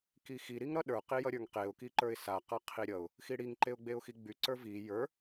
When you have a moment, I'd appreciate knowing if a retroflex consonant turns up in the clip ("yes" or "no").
yes